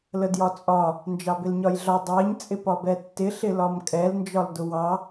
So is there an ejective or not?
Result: yes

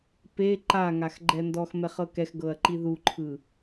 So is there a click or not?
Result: yes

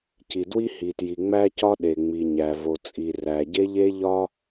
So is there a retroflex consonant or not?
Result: no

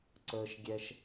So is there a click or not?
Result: yes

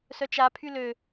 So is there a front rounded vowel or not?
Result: yes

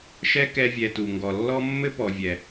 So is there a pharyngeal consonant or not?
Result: no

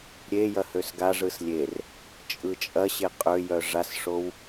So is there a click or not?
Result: no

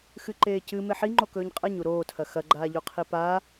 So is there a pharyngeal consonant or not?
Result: yes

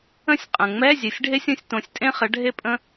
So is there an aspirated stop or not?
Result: no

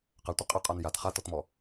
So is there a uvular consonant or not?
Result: yes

